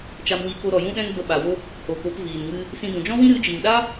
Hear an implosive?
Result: yes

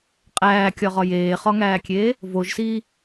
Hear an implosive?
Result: no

